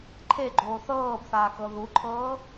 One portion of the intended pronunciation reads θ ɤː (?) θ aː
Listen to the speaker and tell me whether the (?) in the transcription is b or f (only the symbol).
b